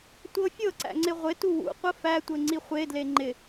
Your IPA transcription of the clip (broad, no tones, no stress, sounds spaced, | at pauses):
tʷ ɤ fʲ ɤ ǀ æ̰ ŋ͡ǀ ɪ ʁʷ ɪ t u w ṵ qʷ ə f æ tʷ ɘ ŋ͡ǀ i χʷ e d l e ŋ͡ǃ ɪ